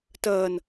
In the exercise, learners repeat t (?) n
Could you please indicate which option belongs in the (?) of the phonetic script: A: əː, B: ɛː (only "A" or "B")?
A